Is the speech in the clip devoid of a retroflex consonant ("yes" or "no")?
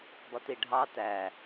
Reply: no